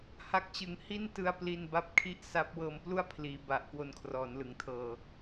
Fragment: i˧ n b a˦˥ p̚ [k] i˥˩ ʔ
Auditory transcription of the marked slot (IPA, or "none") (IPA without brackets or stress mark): kʰ